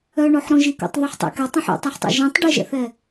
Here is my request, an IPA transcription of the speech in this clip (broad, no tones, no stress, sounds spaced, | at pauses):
œ ɳ o ħ ɾ õ ʒ i k o̰ tˤ ð ɵ ħ tˤ ḛ k ɛ tˤ ũ ħ ṵ tˤ ɑ ħ tˤ ṵ ʒ ĩ tˤ ɖ e ʒ ɛ̰ θ ɛ